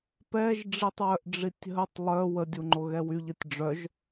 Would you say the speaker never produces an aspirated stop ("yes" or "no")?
yes